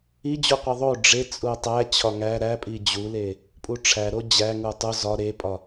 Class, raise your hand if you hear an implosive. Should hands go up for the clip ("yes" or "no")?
no